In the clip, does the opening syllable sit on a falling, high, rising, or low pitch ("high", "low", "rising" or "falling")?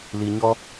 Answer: low